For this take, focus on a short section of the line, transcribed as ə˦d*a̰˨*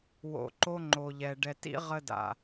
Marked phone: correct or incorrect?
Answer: correct